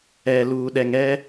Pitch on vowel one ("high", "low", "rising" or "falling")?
low